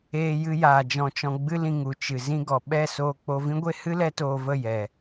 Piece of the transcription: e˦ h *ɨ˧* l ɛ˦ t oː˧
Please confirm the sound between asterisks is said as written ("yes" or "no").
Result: no